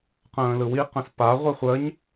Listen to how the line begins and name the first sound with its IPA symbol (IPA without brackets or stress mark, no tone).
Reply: q